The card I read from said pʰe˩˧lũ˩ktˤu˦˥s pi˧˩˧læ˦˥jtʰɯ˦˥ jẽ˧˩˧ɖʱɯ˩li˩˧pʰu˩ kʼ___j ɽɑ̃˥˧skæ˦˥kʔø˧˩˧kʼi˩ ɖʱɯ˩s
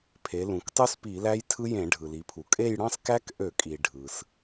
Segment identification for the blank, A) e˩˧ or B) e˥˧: B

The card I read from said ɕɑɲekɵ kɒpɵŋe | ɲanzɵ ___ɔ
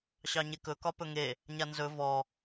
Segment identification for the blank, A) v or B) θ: A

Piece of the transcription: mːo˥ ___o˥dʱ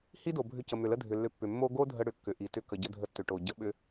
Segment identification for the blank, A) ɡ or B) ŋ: A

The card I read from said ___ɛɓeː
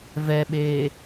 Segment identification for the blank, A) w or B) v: B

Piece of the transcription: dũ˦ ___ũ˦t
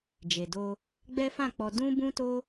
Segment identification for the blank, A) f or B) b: B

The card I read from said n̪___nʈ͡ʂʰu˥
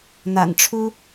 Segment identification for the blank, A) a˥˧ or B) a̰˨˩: B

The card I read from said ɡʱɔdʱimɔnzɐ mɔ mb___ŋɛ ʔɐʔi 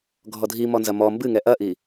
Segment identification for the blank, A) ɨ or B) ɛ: A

